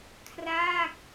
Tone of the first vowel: falling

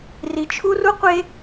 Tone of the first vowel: low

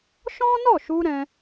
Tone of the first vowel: high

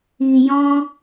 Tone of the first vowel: low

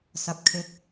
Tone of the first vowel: low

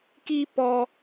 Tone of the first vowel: high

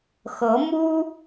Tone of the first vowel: rising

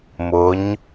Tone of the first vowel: rising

